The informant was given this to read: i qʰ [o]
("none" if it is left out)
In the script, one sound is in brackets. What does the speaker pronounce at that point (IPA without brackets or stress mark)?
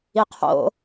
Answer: o̰